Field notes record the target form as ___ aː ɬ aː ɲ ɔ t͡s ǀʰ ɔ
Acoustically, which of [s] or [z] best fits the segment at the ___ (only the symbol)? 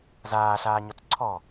z